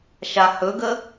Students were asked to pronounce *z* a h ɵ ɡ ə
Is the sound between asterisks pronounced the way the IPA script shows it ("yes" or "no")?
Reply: no